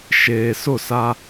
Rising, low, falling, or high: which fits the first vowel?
low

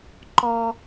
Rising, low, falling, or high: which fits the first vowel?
high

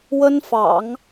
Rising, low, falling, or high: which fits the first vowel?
high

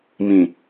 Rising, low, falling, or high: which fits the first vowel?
low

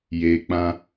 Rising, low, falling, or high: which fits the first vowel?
low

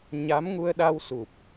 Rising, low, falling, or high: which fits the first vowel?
rising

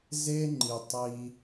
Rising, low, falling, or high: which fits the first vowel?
high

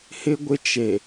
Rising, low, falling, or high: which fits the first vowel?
high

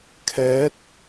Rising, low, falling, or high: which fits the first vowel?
rising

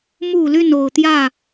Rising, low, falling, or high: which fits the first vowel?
low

